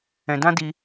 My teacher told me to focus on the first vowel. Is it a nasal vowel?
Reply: yes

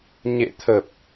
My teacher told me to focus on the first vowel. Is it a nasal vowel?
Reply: no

